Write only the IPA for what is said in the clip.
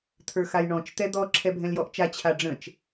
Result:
t̪ʰə˞xajɳɔ̃t͡ʃ t̪ɛd̪ɔ ǁʰɛbʱɛ̃ljɔʔt͡ʃa t͡ɕʰaɖ͡ʐə̃t͡ʃ

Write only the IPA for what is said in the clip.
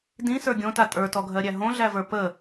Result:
dĩsə˞ ɡʲõta tʼə˞tɔɡʱɜɾʲæ ɦõɮævə˞ pə

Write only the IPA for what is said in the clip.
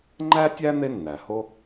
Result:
ŋ͡ǃæ˥tʲæ˥ n̪e˥ nːæ˩ho˥

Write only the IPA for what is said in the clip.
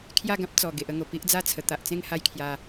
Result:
kʰja˥˧ɡã˦p̚ t͡sɔ˨˩ ɡe˨ʔə˧ŋo˨˩ pi˦ʔd͡za˥˧t͡sʰə˨˩ t̪a˨ʔt͡sẽ˥˧ŋ ha˦jkʰja˧

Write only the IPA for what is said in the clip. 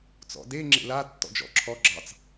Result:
t͡sɔ̰de ŋ͡ǁḛla tːɔ̰d͡ʒɔ̰ǁʰɔ ɡ͡ǁɑt͡s

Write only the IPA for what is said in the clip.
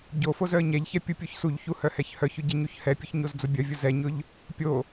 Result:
ɟofoz œə̯ɲɛʎçɛ pʲupʲoçsuʎçu hœhɛçhœçʊ ɟɛɲuçhɛpʲʊç ɲozd͡zʊbʲœvʲʊ zɛɲʊʎ | pʲo

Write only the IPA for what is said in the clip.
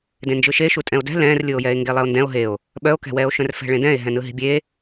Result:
dẽnd͡ʒɯʃe ʃutʼɛ̃o̯dɛ̤ lɛ̃ːrlʲɯo̯jɛe̯ ŋɡelˠeo̯ndɛ̃o̯ ɦeo̯ | ɓœo̯kɛ̤wɛːo̯ʃœ̃r fɛ̤ɭẽdɛ̃e̯ ɦɛ̃nɯɦi̤bʲe

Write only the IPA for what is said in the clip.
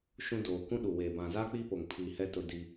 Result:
ʃũ˦doː˨ kũ˦ɗu˨weː˨ bã˨za˦ k͡piː˦po˨ŋ pʰiː˨hɛ˦ tʊ˦di˦

